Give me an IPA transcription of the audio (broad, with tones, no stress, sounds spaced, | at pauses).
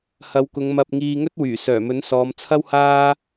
h ɐ˨˧ w k ʊ˨˧ ŋ m ɐ˧ p̚ ŋ iː˧ ŋ ɵ˥ t̚ w yː˨˩ s œː˨˩ m ɵ˨˥ n s ɔː˨˧ m t͡sʰ ɐ˥ w h aː˥